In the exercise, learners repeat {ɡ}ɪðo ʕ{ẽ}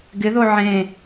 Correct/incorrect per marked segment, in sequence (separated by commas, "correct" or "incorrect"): correct, correct